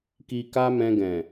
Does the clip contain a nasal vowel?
yes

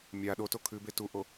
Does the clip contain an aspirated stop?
yes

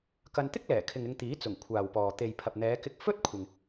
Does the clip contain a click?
no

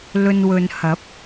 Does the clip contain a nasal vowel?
no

